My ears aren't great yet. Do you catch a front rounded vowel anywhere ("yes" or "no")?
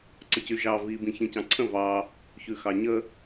yes